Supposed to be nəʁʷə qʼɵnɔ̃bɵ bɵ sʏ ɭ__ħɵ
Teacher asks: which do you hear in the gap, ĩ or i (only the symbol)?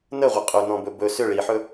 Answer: i